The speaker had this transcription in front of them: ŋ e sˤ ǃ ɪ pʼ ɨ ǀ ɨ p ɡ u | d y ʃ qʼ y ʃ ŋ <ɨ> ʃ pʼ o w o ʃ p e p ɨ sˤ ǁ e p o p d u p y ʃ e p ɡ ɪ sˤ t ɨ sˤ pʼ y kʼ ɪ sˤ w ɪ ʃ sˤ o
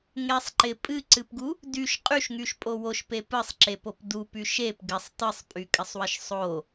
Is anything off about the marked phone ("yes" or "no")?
yes